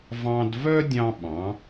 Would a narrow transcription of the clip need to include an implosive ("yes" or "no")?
yes